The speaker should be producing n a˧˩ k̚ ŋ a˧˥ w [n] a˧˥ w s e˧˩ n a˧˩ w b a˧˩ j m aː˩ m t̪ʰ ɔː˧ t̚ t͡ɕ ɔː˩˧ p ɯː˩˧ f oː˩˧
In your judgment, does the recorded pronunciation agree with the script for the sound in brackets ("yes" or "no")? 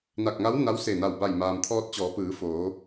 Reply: yes